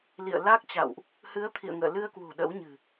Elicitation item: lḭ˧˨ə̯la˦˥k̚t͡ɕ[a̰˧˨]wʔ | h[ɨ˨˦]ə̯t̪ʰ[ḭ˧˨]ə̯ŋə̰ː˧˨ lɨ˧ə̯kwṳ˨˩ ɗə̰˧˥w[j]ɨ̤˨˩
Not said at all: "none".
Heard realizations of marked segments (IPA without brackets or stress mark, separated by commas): a̰˧˨, ɨ˨˦, ḭ˧˨, ɲ